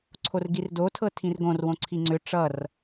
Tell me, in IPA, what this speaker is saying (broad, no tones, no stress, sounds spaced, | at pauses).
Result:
ǀʰ o r ɡ i r d o tʰ ɤ tʰ ĩ r ɡ õ r w õ ǀʰ i ŋ͡ǀ ʏ ʈ͡ʂ ʌ r